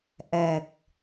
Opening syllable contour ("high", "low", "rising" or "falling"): low